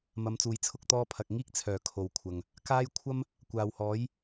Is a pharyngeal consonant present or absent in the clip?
absent